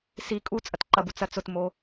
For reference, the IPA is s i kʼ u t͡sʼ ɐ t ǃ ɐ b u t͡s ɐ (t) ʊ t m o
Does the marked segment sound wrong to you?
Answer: yes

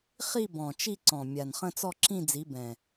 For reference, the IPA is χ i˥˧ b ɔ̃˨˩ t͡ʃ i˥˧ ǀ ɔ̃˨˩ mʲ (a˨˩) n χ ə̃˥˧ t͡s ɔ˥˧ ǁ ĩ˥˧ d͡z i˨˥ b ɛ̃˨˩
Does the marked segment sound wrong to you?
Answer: no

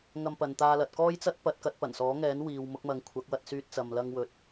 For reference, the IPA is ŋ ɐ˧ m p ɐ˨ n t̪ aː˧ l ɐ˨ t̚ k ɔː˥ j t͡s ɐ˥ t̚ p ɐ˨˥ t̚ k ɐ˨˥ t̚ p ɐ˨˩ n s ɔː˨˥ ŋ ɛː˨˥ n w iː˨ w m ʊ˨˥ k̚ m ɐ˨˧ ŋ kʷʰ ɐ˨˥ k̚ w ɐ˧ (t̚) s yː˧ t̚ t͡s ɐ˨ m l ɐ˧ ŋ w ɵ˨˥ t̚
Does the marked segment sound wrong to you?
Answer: no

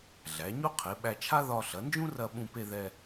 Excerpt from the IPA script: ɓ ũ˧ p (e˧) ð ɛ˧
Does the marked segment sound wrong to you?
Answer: no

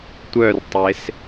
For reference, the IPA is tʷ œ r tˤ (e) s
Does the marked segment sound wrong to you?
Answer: no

